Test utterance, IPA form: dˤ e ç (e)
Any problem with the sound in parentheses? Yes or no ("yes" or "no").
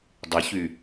yes